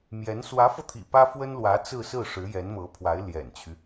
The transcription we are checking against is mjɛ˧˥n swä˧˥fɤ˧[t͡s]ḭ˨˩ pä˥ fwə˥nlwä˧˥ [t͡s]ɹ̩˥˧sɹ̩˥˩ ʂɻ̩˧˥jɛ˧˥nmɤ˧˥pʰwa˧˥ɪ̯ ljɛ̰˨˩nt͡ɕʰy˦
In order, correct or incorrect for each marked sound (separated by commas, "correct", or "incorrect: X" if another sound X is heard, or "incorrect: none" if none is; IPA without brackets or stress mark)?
incorrect: t̪ʰ, correct